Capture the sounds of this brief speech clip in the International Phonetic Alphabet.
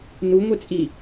n u ŋʷ ɛ t͡sʼ i

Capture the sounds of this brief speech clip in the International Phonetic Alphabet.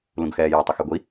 l ũ ɡ x ɛː j ɑ tˤ ə x ɛ ɡʷ i

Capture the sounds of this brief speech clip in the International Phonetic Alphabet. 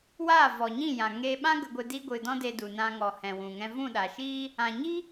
w aː˦˨ v ɔ˨ ɲ ĩ˦˨ j ã˨ ŋ e˧ ɓ ã˦ ɡ ə˧ ɡʷ ɨ˧ d i˧ ɡʷ ɨ˨ d ɔ̃˦ d e˧ d u˨ n ã˧ ŋ ɔ˨ h ɛ̃˨ w ũ˨ ŋ ɛ̃˧ v ũ˦˨ ɗ a˨ ʃ i˦ | ã˨ ɲ i˦

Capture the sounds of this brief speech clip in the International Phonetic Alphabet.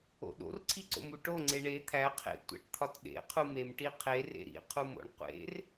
o̰ ɗ o̰ r ǀʰ i ǀ o̰ m u ʈ o ŋ͡ǀ e ɳ e t̪ʰ æ qʰ ḛ tʷ æ̰ ʈ t̪ʰ ɒ t ɗ ḛ qʰ u m e m ʈ i qʰ e r ḛ ɾ ḭ qʰ u m o̰ ɳ qʷ ḛ r

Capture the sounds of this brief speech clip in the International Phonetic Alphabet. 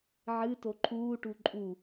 ʕ ɨ t o ǃʰ uː ʈ u ǃʼ u

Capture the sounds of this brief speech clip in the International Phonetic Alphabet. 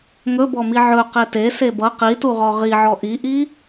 ŋ ɵ b ɔ m i ʕ ɵ q e t e s e b ʌ q i t u ʁ ɔ ʁ i ʕ ɔ ʔ i ʔ i

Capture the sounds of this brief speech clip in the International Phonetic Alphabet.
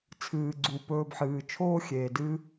t͡sʰ ɨː˩ ɡ͡ǀ u˩ p ɵː˨ b ħ ɨː˩ t͡ʃʰ oː˥ xʲ eː˩ d ɨː˦

